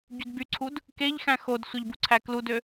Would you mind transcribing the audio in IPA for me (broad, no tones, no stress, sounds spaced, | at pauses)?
ɟ y d b y ǀʰ u d | k e ʎ x æ̃ x o d sʷ e ʎ b u ǀʰ æ k l u d ø